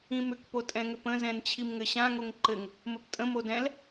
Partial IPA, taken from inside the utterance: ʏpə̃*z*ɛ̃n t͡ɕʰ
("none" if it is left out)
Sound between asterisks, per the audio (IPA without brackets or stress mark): z